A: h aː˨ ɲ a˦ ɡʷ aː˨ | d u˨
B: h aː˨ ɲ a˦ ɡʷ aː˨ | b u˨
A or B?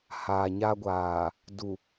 A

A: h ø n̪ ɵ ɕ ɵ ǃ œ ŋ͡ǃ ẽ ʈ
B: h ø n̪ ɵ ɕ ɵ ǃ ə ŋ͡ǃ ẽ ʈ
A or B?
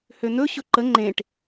B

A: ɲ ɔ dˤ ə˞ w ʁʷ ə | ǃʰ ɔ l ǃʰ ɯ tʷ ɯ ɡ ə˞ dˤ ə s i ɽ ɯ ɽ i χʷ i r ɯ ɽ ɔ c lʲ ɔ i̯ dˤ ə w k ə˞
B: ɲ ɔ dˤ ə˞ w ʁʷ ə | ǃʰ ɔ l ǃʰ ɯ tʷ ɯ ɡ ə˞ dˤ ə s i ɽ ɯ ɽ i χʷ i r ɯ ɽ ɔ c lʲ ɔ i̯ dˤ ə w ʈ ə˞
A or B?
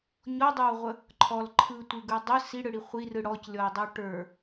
B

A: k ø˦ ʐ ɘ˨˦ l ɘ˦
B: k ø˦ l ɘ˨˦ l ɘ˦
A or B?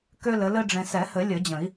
B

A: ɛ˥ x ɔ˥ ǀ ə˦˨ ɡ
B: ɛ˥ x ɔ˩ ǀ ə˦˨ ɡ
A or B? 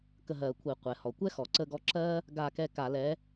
B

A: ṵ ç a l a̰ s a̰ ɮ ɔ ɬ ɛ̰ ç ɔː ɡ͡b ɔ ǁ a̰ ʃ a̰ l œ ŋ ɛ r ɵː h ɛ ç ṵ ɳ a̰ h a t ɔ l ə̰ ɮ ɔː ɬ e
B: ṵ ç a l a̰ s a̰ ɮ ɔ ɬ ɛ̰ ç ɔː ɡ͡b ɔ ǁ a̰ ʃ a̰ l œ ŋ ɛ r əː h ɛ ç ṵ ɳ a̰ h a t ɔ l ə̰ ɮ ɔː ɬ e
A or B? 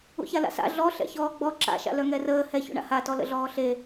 B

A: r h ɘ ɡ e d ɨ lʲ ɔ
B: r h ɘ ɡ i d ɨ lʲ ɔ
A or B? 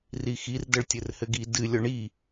B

